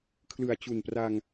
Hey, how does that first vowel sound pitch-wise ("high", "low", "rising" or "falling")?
low